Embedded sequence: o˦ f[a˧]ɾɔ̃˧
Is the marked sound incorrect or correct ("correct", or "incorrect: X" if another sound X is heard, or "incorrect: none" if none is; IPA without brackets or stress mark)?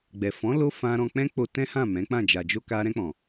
incorrect: ã˧